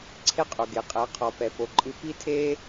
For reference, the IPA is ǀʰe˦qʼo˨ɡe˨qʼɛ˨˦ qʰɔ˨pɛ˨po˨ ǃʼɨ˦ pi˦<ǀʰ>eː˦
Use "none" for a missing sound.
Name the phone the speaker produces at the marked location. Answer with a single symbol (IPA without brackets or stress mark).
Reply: tʰ